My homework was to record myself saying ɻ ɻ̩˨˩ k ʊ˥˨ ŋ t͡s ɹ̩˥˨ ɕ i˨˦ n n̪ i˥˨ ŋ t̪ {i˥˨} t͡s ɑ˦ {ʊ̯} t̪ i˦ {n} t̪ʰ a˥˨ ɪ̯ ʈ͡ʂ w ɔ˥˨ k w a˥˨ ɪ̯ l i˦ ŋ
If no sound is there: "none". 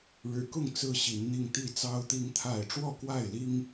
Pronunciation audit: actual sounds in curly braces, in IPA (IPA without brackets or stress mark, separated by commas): i˥˨, ʊ̯, ŋ